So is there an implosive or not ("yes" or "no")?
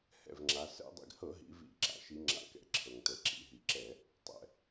no